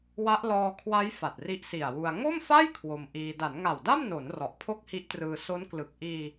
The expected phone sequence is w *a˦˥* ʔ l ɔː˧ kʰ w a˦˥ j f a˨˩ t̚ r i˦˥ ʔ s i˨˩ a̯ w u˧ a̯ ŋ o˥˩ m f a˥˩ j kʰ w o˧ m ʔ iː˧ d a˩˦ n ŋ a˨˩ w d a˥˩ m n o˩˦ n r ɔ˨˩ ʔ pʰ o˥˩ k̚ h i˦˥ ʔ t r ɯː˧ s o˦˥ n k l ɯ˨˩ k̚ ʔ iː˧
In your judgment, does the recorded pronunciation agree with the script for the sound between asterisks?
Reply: yes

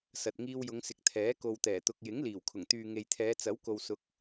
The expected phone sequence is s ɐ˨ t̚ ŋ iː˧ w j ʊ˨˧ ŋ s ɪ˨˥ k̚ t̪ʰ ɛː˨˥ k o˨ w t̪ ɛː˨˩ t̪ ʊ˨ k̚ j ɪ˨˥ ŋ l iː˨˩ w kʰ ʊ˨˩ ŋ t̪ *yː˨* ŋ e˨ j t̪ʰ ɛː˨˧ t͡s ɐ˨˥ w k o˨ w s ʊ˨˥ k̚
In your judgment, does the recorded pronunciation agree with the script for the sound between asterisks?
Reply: yes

